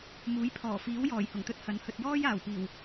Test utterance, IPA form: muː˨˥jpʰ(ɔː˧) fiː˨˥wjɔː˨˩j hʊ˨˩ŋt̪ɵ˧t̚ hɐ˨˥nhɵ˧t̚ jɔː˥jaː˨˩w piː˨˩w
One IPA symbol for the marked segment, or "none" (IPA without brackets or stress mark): ɔː˨˩